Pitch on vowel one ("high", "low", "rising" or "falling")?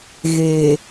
low